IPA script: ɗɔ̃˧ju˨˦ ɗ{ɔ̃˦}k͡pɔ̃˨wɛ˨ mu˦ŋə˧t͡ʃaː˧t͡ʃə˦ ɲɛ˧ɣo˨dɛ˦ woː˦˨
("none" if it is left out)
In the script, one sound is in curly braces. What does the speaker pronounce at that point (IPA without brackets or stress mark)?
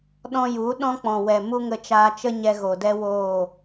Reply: ɔ̃˦